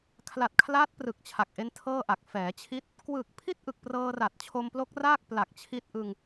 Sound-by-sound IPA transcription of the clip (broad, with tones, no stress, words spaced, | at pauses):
kʰla˨˩t̚kʰlaː˦˥t̚ prɯ˨˩k̚t͡ɕʰa˨˩k̚ʔe˦˥n tʰɤː˥˩ʔa˨˩k̚ fɛː˩˦t͡ɕʰi˥˩t̚ | kwɯː˨˩k̚pʰi˥˩t̚ʔɯ˨˩k̚ prɤː˧ra˨˩t̚t͡ɕʰo˧mplo˦˥k̚ raː˥˩k̚pla˨˩k̚t͡ɕʰi˦˥t̚ʔɯ˧ŋ